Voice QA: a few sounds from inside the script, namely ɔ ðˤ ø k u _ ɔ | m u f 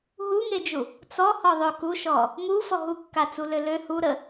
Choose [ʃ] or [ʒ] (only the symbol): ʃ